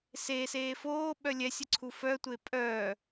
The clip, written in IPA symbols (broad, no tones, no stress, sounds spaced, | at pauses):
s eː s eː f oː ɓ œ lʲ ɛ sʲ ə ǀʰ u f œ tʷ e pʼ œː